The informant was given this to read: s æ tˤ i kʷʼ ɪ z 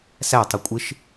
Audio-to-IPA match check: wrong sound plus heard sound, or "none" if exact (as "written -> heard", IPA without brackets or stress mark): z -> ʃ